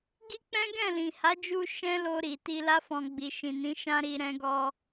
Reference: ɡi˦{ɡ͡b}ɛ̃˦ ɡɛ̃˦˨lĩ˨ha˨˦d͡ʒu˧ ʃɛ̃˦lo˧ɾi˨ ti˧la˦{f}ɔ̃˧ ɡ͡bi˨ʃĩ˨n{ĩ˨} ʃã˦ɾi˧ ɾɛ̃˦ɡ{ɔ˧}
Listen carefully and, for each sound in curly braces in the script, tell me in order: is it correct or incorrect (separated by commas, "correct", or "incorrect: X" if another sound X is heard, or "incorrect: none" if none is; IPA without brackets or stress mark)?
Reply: incorrect: k͡p, correct, incorrect: ĩ˨˦, incorrect: ɔ˦